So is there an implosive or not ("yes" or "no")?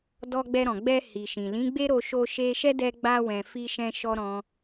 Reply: no